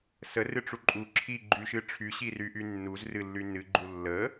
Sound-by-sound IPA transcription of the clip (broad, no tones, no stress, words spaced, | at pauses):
sərɨʈ͡ʂu ǃʼu ǁʰiɡ͡ǃyʃɨ ʈ͡ʂʰyɕiryʔy nːuzrɨlːy nɨɡ͡ǃu lːə